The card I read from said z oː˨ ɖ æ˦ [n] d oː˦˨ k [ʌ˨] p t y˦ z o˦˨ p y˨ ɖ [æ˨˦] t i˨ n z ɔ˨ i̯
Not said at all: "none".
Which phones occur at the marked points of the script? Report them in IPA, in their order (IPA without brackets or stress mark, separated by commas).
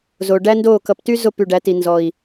n, ʌ˨, æ˨˦